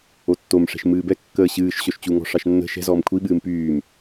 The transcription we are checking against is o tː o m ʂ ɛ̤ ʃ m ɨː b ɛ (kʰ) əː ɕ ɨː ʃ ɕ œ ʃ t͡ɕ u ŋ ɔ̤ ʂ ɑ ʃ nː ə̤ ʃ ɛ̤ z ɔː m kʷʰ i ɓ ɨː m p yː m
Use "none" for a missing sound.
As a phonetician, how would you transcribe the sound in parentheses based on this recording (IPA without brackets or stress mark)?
kː